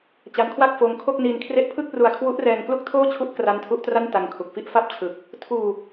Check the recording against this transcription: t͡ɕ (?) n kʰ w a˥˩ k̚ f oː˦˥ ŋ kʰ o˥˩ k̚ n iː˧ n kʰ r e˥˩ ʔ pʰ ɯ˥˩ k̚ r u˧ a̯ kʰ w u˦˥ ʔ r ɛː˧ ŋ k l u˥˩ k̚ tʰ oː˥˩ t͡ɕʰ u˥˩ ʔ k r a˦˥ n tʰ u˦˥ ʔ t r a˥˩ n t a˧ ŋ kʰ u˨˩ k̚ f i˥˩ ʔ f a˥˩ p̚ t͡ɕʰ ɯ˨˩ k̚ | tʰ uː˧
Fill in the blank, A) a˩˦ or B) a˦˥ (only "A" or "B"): B